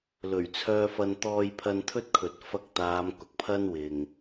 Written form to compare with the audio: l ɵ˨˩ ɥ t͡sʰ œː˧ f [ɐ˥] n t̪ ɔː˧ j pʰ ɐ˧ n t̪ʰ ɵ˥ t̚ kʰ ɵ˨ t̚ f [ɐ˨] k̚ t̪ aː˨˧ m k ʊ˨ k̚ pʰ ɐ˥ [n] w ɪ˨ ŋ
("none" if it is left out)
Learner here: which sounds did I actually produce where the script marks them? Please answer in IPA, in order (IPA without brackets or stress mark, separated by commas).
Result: ɐ˧, ɐ˧, n